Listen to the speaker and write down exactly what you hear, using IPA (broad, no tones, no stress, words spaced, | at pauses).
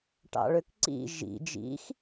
ʈɑ̰ɭøkǀḭ ʒḭ d͡ʒḭx